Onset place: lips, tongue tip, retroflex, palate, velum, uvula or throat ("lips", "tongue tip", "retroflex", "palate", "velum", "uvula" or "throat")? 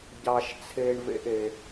palate